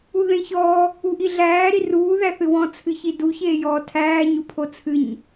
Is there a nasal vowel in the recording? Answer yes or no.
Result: yes